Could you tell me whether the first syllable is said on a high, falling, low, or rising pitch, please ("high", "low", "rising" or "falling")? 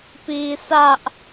high